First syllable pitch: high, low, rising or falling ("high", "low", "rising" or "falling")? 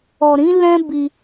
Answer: low